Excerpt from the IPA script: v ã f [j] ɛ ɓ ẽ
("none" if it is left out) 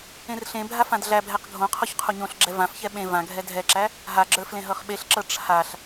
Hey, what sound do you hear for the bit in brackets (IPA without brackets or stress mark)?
ç